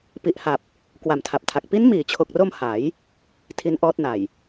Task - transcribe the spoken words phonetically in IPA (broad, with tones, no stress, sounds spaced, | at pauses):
p i˨˩ ʔ h a˨˩ p̚ | k w a˨˩ m tʰ a˨˩ p̚ tʰ a˨˩ k̚ p i˦˥ n m iː˩˦ t͡ɕʰ o˨˩ k̚ r o˧ m h a˩˦ j | tʰ i˦˥ n ʔ ɔː˦˥ t̚ n a˨˩ j